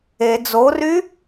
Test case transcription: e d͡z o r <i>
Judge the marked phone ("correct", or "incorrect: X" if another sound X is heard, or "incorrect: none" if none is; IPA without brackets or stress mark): incorrect: y